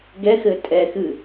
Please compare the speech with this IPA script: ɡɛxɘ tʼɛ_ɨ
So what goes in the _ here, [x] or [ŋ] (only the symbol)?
x